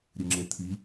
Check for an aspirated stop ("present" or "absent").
present